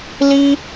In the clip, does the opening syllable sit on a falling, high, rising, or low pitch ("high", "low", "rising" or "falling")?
high